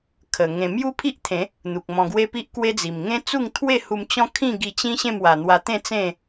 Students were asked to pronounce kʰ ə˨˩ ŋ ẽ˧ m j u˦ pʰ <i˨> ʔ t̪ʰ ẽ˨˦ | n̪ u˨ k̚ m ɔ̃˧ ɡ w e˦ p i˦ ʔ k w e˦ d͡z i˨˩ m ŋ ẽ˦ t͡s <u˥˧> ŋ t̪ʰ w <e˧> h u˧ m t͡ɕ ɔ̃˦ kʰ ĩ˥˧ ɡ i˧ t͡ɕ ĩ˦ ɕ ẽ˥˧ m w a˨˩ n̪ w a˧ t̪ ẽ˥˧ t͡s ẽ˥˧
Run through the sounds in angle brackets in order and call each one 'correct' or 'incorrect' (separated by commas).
incorrect, correct, incorrect